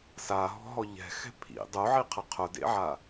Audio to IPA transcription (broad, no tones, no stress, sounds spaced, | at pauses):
s a ɦ ɔ̤ ɦ ɔ ʎ ɛ̤ x ɛ̤ pʰ ḭ dˤ o ʕ i qʰ ə qʰ ʊ d ḛ ʕ a